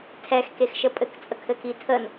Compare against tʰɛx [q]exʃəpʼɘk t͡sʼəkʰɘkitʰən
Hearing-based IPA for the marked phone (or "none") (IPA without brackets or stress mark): k